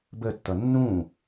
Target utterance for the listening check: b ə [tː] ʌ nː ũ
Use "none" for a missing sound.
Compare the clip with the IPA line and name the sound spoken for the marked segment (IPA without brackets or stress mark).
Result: tː